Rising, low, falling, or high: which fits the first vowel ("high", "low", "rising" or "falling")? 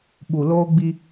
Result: low